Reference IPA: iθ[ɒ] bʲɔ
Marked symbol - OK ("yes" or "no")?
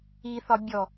yes